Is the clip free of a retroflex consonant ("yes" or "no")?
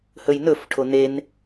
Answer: no